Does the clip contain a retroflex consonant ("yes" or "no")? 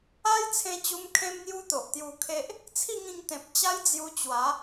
no